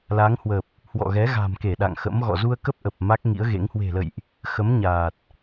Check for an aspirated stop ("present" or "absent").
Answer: absent